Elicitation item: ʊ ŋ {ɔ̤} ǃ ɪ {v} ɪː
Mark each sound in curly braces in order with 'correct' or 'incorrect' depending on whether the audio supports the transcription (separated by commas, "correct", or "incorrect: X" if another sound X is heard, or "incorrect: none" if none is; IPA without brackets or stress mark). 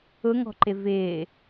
correct, correct